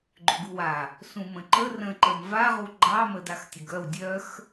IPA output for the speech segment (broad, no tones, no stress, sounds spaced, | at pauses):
ɡ͡ǃ ʏ ɡ u w a | s ũ m ə̃ ǃ ə r ə̃ ǃ ə m v a ʁ u ɡ͡ǃ ɑ m ə d a x tʲ ə ɡ œ w dʲ œ x